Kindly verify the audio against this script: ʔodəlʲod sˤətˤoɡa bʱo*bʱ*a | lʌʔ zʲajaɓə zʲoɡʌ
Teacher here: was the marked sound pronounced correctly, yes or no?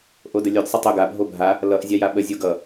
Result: yes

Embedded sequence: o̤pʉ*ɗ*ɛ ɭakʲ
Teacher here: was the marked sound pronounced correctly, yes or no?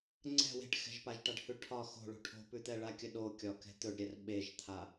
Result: no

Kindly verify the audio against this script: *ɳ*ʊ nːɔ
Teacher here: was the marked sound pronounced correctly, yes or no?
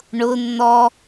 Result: yes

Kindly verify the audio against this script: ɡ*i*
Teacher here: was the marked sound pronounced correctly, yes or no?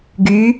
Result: no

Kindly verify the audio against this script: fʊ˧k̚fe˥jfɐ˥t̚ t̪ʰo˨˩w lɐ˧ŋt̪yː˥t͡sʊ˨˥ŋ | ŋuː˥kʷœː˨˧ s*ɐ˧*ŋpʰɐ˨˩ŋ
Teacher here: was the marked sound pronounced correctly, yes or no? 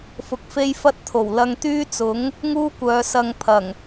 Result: yes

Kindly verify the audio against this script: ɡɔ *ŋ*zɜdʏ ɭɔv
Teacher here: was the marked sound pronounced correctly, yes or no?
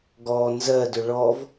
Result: no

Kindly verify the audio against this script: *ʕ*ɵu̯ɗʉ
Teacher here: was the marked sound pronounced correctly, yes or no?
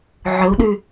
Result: yes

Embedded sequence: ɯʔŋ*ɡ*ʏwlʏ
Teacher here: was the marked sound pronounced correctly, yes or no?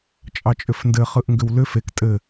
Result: yes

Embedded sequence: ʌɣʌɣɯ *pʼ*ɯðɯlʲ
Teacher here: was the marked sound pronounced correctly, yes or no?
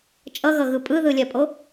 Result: yes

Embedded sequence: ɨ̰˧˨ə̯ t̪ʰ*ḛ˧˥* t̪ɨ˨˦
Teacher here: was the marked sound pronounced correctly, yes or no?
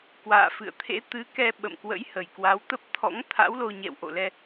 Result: yes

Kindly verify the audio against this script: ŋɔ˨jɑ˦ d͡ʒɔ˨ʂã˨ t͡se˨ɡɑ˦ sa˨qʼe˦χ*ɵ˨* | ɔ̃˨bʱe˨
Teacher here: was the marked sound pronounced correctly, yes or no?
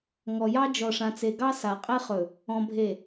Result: yes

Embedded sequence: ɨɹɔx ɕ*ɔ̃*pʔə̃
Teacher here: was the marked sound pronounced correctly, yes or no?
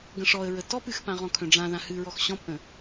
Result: yes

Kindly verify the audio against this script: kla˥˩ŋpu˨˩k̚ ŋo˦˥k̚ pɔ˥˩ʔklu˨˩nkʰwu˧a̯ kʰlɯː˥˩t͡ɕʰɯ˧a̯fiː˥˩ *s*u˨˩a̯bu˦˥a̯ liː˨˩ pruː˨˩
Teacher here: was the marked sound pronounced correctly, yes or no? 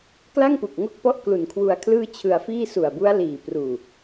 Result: yes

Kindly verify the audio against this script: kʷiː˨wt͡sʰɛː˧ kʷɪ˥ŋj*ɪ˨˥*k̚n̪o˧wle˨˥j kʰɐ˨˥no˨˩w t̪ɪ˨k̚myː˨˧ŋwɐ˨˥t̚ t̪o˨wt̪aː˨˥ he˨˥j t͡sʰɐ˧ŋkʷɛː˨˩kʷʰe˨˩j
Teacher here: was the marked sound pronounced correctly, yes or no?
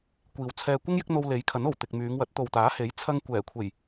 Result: yes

